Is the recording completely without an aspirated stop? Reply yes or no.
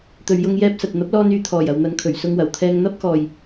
no